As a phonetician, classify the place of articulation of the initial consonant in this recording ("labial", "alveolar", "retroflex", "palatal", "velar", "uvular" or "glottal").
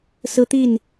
alveolar